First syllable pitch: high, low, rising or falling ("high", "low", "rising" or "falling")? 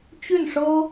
falling